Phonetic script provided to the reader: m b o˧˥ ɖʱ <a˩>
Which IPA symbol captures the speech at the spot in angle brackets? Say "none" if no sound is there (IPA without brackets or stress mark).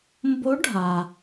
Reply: a˩